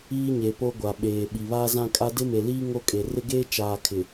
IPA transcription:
iː˦ ɲ e˨ p o˦ ɡʷ a˨ ɓ eː˨ ɓ i˨ β aː˦ z ã˦ kʼ a˦ d ɪ˦ m e˨ l iː˦ ŋ o˦ kʼ e˨ r ɪ˦ ɡ eː˦ t͡ʃ aː˨ kʰ ɪ˨

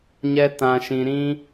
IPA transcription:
ɲ ɛ˧ t ã˨ ʃ ĩ˨ ɾ ĩ˧

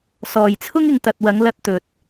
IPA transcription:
s ɔː˨ j t͡sʰ ʊ˥ ŋ ɪ˨ ŋ t̪ ɐ˨ t̚ w ɐ˨˧ ŋ l ɐ˧ t̚ t̪ ɵ˧ t̚

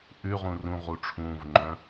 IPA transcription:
ʔ ʉ ʁ ũ r ũ ʁ u ʈ͡ʂʰ ũː v ŋ͡ǃ œ̃

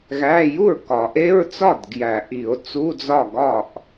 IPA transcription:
ɣ æ˧˥˧ j u˥˩ ɹ k ɒ˨˩˦ ʔ e˧˥˧ ɹ t͡s ɒ˥˩ d ɡ j æ˨˩˦ ʔ i˨˩˦ o̯ t͡s u˧˥˧ d͡z ɒ˥˩ ɡ ɒ˥˩ ʔ

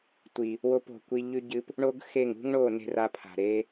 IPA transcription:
tʷ i˨ | w o˧ p o̤˨ kʷ i˧ ʎ ʉ˦ ɟ ɨ˦ p | ɳ o˦ ɡ x e˦˨ ŋ ṳ˦ ŋ ɳ o˦˨ n e̤˧ r a˧ pʰ a̤˨ ɾ e˦

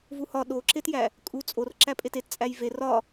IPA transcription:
v u h ɒ ɗ o ǁ e t j æ | kʼ u t͡sʼ o r ǁ æ pʼ e t e t t͡sʼ æ j v e r ɒ

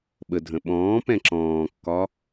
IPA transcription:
ɓ ə dʱ ə̃ ɓ ɔ̃ː p ɛ̃ ǁ ɔ̃ː kː ɒ

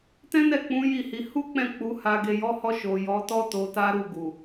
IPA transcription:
t ɛ̃˦ n ɛ˦˨ k͡p ũ˨˦ j i˦˨ h i˨˦ h u˦ k͡p ɛ̃˦˨ k͡p u˨˦ h a˧ ɡ e˨ j ɔ˨˦ h ɔ˧ ʃ o˨ j ɔ˨˦ t ɔ˦ t o˧ t a˦ ɾ u˦˨ ɡ u˨

